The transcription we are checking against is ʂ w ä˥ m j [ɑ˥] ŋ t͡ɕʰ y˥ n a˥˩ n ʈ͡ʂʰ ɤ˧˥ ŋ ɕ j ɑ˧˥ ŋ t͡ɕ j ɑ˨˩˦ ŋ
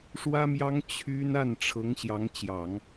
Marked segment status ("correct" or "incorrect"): correct